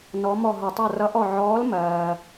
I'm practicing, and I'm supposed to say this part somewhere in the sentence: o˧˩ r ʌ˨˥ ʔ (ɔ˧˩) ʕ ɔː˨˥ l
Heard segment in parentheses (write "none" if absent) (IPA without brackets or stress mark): ɔ˧˩